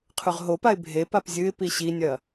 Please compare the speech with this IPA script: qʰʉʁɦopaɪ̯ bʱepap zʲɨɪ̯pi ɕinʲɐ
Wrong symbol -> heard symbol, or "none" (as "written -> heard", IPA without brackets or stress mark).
none